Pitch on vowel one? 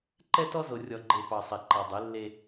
high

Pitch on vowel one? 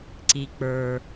low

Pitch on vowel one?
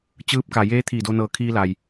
rising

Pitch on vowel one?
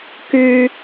high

